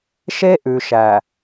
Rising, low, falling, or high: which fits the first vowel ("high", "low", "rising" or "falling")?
high